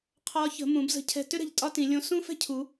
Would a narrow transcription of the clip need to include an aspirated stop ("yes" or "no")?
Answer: yes